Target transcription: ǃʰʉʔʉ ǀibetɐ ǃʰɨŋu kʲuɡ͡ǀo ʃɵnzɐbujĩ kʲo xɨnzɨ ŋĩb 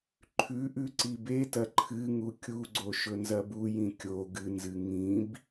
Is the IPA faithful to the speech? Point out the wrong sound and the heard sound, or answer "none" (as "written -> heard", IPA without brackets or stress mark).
x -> ɡ